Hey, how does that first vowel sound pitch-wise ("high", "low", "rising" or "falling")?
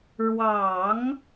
low